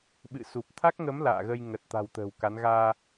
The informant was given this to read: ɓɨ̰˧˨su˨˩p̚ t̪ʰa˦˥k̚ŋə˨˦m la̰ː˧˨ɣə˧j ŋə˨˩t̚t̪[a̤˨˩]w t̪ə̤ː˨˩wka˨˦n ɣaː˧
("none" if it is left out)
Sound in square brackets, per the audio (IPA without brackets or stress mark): a̤˨˩